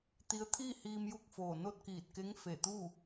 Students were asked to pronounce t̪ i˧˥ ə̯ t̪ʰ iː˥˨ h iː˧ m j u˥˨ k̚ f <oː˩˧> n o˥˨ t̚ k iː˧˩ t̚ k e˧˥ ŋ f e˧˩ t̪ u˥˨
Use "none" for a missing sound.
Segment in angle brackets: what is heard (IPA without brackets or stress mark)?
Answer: oː˧˩